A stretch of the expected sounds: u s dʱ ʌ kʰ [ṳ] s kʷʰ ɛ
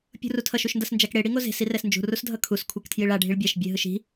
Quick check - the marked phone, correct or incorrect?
incorrect